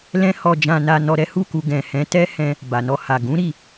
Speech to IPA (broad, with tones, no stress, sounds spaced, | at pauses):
l ɛ̃˦ h ɔ˧ d͡ʒ ã˧ n a˧ n ɔ˧ ɾ ɛ˦ h u˦˨ k u˧ ɡ ɛ̃˨ h ɛ̃˨˦ t ɛ˦ h ɛ̃˧ | b a˨ n ɔ˧ h a˨ ɡ ũ˨˦ ɾ i˦˨